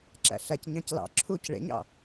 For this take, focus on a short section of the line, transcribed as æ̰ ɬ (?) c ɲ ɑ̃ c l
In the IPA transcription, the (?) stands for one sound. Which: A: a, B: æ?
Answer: B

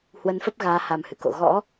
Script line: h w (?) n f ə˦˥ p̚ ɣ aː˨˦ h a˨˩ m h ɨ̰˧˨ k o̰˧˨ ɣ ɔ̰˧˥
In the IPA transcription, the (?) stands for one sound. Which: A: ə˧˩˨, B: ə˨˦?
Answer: B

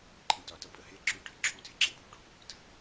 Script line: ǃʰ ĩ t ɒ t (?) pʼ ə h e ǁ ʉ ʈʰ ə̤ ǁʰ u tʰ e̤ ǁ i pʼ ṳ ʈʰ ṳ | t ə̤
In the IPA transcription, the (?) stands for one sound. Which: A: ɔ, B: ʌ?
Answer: B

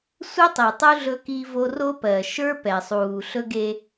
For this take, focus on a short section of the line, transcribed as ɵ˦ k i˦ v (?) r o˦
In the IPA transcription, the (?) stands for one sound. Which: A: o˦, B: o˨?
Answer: A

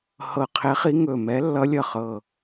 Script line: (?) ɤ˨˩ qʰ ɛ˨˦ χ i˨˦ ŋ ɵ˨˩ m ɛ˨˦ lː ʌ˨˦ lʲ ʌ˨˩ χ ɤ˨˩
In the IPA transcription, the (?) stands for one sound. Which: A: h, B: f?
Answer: A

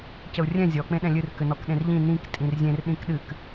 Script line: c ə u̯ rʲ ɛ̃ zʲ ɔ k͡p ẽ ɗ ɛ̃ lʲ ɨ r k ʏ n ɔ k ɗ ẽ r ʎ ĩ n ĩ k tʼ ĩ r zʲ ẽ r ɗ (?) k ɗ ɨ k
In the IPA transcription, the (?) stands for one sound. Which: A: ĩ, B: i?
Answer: A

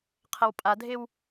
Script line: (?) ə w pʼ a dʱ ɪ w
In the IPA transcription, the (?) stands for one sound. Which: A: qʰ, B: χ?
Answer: A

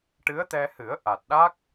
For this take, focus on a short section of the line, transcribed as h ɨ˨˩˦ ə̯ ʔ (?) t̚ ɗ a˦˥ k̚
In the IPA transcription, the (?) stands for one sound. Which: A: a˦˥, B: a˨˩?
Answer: B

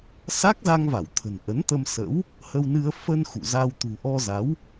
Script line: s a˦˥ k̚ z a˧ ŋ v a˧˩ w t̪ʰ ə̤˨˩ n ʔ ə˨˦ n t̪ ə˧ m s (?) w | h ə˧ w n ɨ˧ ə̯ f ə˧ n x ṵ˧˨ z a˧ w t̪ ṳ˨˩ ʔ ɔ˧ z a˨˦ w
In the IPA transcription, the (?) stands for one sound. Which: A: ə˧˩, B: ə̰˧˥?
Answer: B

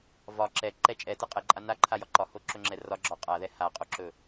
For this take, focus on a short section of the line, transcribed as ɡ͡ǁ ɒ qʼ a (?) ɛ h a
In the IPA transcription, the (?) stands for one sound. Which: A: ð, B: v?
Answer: A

